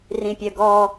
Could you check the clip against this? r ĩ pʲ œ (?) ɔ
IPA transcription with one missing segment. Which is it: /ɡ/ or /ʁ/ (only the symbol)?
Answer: ɡ